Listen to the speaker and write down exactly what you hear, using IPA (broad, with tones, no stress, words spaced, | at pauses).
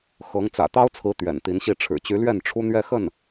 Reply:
xɤ˧˥ŋ t͡sä̰˨˩t̪ɑ˥ʊ̯t͡sʰɹ̩˧˥ t̪ɥɛ̰˨˩nt̪i˧˥nɕi˥˩ ʈ͡ʂʰɻ̩˨˩t͡ɕy˧˥lɥɛ˥˩n ʈ͡ʂʰu˥n̪ɥɛ˥˧xə˥˩n